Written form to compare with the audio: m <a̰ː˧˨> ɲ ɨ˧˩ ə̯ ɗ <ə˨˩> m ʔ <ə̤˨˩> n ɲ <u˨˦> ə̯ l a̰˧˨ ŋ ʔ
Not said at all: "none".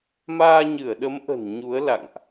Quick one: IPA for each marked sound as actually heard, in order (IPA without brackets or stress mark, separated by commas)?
aː˧, ə˨˦, ə̤˨˩, u˨˦